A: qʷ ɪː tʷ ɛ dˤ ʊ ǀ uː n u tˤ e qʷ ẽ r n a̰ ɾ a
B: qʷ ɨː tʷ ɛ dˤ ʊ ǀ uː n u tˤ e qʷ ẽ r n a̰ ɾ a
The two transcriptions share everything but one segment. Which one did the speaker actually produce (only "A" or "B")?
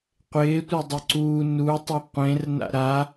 A